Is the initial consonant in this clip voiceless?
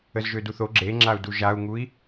no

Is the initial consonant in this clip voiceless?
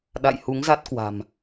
no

